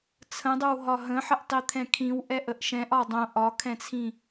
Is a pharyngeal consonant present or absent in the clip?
present